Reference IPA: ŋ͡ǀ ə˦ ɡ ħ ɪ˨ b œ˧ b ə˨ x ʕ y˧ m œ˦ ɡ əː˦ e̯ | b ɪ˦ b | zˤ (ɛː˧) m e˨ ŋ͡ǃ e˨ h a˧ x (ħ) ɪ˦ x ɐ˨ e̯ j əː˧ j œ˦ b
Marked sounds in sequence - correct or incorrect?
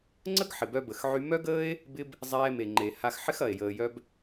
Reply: correct, correct

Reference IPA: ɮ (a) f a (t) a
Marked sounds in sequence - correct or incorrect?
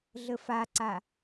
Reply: incorrect: ə, incorrect: ǀ

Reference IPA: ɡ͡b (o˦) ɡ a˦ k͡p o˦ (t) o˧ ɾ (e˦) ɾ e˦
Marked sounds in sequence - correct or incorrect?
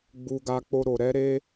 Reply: incorrect: u˦, incorrect: ɾ, incorrect: ɛ˦

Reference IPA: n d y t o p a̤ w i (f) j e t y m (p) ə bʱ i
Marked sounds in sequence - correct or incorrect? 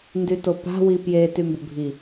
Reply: incorrect: p, incorrect: b

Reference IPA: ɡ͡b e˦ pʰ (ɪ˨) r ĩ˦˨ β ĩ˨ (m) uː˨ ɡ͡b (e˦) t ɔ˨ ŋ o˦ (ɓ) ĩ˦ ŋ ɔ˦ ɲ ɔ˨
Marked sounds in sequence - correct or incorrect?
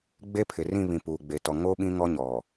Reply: correct, incorrect: p, incorrect: e˨, correct

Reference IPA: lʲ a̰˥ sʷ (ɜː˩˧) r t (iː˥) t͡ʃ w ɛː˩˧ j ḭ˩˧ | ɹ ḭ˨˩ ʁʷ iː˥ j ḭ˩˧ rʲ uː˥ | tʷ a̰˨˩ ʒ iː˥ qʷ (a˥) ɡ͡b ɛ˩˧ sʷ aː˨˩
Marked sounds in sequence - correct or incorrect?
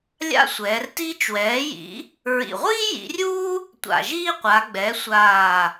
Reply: incorrect: ɛː˩˧, correct, incorrect: a˩˧

